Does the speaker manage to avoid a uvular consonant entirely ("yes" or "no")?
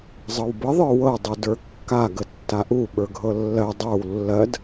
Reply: yes